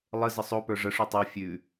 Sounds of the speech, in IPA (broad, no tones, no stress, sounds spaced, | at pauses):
lˠ ə z ə sˤ o p ə˞ ʐ ə ʂ ʉ tˤ ə˞ fʲ ʉ